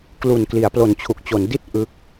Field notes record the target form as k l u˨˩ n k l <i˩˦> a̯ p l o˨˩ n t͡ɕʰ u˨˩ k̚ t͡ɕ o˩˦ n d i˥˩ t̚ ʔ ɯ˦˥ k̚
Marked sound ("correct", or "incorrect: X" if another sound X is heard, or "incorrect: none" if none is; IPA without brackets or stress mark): correct